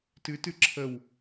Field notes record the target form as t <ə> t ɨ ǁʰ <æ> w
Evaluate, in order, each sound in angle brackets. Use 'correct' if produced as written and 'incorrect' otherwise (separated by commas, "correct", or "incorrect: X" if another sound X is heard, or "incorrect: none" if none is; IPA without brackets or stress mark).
incorrect: ɨ, incorrect: ə